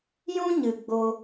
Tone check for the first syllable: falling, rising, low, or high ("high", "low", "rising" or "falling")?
high